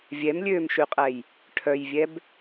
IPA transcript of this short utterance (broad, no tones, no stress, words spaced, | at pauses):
vʲɛmlʲøːmʃyqʼɛj | ʈʰœjvʲɛb